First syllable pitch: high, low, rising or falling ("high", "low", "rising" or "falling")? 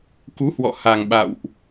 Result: rising